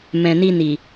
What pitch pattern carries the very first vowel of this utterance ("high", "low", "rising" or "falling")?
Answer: low